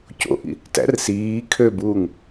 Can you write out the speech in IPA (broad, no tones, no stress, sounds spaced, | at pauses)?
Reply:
c o̰ ʔ ḭ | t æ̰ r s iː kʰ ø b uː ŋ